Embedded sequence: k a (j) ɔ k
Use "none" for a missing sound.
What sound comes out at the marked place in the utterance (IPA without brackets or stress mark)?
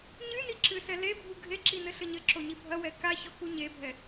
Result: ç